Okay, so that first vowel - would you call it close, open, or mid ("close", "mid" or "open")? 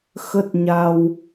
mid